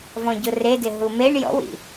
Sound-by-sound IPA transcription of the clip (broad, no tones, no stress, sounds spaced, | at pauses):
v ɔ̃ ɟ ʊ r e d ɪ ɦ u m e ɳ j ɔ̰ w ḭ